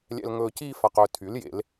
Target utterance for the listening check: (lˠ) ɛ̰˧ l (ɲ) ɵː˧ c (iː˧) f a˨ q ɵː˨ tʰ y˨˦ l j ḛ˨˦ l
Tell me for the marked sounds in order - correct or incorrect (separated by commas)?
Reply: incorrect, incorrect, correct